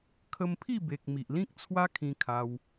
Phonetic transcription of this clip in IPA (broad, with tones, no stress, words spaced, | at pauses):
kʰə˧mpʰi˥˧be˨k̚ mi˨ʔlĩ˦k̚t͡sʰwa˦ kʰĩ˧kʰa˧w